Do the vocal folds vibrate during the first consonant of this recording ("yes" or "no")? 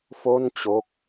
no